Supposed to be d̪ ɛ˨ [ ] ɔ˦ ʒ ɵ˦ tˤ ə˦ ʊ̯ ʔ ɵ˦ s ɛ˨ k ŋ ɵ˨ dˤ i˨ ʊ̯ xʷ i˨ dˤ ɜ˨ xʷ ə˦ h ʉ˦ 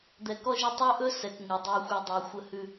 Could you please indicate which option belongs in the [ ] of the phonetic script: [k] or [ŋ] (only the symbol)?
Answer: k